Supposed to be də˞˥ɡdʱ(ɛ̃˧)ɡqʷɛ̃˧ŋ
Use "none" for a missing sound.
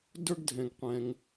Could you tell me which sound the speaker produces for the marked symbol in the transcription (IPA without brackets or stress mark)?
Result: ɛ̃˧